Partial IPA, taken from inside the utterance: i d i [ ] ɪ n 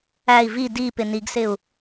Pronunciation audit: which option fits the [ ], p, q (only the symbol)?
p